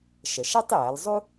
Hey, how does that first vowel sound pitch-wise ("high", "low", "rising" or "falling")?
low